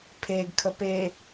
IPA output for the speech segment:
pʰeɡkʰə pe

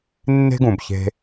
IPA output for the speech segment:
nːe̤˦ɡũ˨bçe̤˧

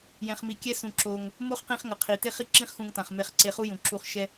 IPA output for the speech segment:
jɛ̃˨χmi˨kʲɛ˦ sũ˧ǁo˧ŋ | mo˦χqĩ˧χŋʌ˨ qʰi˨ te˦χi˦ǁĩ˦χxũ˧ŋ tã˨χme˧χ ǀe˧χu˦jũ˨ ǁu˧χʃɛ˦

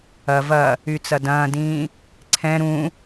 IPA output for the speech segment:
ɐ vɐ | yt͡sɐdɐ̃ːdĩː | ǀʰɛ̃ ɾũ

